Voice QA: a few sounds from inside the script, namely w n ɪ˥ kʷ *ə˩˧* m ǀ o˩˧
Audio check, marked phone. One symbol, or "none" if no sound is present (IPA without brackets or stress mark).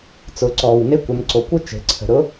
ə˩˧